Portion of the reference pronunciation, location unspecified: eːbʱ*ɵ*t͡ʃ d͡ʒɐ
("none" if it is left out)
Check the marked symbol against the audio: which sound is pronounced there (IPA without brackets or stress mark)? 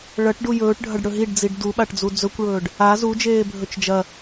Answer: ɵ